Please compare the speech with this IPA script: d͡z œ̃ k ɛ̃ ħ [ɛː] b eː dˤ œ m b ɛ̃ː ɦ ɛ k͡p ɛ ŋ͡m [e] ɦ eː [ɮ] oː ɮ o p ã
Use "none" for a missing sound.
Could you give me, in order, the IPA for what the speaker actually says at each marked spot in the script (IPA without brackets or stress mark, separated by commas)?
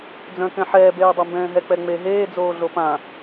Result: ɛː, e, d͡z